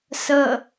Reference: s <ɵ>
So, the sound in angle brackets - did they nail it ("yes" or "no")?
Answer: no